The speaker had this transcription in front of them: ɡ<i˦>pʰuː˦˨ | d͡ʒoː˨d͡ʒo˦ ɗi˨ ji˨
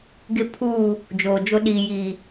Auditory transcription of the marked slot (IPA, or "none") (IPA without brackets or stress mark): ɪ˦